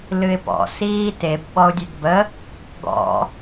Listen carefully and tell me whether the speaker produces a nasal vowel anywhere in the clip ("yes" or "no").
no